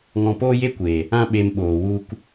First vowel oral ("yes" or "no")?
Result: no